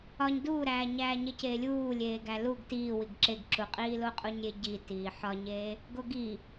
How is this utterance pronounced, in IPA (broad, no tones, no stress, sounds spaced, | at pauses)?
ɒ ɲ d uː ɾ æː ɲ æː ɲ e c eː lʲ uː lʲ eː ɡ æ l u ɡ t iː w i ɡ ǁ e ɡ ǁ u qʼ iː l o qʼ u ɲ ɾʲ e ɟ i t iː ħ ɒ ɲ eː | ɡ o ɡ i